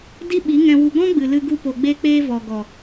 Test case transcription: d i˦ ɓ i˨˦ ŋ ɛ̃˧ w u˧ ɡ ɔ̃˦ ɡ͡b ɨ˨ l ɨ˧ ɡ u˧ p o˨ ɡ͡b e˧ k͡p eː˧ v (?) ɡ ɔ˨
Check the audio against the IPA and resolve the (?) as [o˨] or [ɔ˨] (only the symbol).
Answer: ɔ˨